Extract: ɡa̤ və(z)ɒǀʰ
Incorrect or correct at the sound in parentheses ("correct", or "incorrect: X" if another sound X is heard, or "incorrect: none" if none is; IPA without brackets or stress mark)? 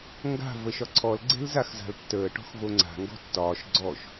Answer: incorrect: ʃ